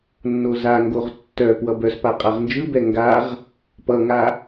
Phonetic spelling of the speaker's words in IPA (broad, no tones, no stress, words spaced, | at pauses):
nːozaŋɡoʁ tːœ pwʌbœspa qʼaʁnd͡ʒɯbɛ ŋɡaʁ | pʌŋa